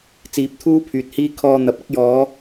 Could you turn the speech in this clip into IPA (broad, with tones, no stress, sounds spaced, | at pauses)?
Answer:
t͡s iː˨˥ p̚ t̪ʰ uː˥ pʰ yː˨ t̚ h iː˥ kʰ ɔː˧ n̪ ɐ˨ p̚ ɐ˥ k̚ j ɔː˨˧